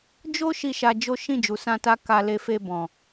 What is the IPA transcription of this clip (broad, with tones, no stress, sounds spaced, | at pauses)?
d͡ʒ o˦ ʃ i˦˨ ʃ a˧ d͡ʒ o˦ ʃ ĩ˦˨ d͡ʒ u˨ s ã˧ t a˧ k a˧ l e˧ f e˧ b ɔ̃˨